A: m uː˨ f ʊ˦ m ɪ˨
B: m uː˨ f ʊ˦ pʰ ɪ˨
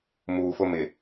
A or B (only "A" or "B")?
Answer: A